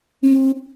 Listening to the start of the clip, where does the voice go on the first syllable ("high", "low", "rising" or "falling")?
high